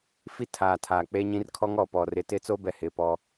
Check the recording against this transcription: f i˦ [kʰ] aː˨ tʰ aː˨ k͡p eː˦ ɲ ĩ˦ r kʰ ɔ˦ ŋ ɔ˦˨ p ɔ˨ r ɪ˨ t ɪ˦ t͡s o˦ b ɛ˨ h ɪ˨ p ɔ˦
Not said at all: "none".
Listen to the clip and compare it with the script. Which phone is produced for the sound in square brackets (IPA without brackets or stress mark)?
tʰ